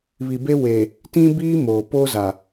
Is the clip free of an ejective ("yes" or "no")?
yes